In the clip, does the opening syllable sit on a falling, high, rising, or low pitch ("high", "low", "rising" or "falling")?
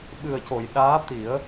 low